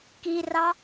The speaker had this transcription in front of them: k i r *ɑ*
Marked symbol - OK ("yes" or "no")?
yes